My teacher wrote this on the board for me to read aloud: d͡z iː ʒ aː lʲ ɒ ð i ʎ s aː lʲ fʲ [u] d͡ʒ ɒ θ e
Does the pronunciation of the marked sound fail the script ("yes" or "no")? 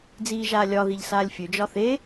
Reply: yes